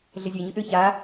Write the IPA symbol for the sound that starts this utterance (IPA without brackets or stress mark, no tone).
ɮ